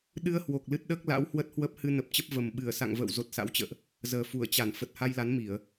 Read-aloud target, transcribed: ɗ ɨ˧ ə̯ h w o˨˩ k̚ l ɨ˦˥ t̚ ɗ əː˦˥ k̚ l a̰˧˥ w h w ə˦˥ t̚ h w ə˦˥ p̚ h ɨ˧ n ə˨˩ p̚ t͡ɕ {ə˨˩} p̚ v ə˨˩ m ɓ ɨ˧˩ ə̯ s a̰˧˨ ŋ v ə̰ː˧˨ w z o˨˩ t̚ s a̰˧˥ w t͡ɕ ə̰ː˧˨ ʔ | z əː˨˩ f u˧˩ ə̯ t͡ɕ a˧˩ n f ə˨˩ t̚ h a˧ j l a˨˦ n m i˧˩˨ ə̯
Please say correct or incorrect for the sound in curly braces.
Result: incorrect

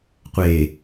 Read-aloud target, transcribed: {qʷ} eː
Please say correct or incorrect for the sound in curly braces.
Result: correct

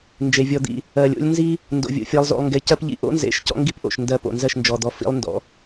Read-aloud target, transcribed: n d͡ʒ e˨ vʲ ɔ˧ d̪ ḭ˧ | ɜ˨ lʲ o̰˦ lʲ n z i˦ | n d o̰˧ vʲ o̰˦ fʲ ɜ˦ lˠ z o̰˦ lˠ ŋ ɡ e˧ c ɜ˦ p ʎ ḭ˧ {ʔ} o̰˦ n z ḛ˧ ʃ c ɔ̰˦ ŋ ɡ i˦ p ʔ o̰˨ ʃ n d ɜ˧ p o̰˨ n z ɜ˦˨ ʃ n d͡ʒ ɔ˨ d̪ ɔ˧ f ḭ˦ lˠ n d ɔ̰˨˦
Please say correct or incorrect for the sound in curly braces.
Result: correct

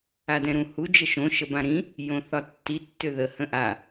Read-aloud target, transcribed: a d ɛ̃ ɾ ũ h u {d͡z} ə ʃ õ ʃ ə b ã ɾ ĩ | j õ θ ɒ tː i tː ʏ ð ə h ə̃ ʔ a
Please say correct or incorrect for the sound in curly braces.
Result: incorrect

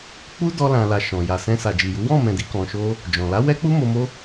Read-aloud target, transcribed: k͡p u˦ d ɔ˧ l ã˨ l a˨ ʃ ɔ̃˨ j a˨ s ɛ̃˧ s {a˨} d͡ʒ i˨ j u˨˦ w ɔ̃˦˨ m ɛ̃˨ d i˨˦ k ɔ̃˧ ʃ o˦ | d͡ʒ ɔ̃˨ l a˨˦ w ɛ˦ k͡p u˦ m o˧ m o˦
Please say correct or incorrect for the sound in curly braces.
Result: correct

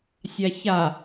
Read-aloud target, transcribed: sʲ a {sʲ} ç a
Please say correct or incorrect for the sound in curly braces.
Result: incorrect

